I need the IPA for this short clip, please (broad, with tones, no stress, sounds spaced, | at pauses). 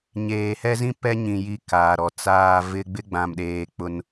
ɲ eː˨ h ɛ˦ z ĩ˦ p ɛ˦ ɲ ĩ˨ j i˦ k aː˨ ɾ ɔ˨ t͡s aː˨ v ɪ˦ ɡ͡b ɪ˦ ɡ͡b ã˨ m ɗ eː˨ k͡p ʊ˦ n